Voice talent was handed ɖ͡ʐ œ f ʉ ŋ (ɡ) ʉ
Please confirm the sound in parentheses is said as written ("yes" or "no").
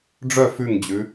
no